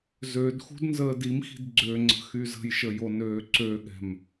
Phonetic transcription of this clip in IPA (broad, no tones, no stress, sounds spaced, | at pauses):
z ø d x ṳ d n z əː d i m x i̤ d ɡ͡ǀ ø ŋ͡ǀ ə̤ x y z ə̤ j ʃ ə j o n øː ǀ ø ɠ ɛ̤ m